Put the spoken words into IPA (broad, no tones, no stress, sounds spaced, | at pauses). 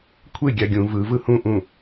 kʷʰ e ɡʲ a ɡʲ ũ v ɯ v ɯ h ũ ʔ ũ